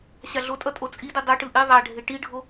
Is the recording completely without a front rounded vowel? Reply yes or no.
yes